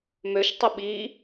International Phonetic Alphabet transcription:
møʃtˤʊ ɓi

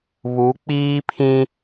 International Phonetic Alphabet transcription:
βu˨˦k͡piː˦pʰĩ˦

